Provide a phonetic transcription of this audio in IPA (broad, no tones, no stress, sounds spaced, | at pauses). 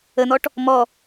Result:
ə n ɔ ʈ | m ɔ